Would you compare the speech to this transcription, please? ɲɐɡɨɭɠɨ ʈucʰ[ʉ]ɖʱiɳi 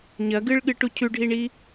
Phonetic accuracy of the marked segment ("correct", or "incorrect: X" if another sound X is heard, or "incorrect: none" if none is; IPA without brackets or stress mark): correct